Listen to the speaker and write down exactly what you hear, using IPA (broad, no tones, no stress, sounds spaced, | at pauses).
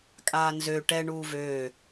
kʼ aː n z ø ʈ ɛ ɳ uː v øː